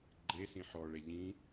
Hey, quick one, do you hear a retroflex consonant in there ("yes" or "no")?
yes